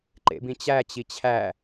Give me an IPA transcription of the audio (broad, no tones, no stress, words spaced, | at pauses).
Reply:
ǃḛbĩt͡ɕæ t͡ɕit͡ɕʰæ